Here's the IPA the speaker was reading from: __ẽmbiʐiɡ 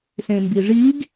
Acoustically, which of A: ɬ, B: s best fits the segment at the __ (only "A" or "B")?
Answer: B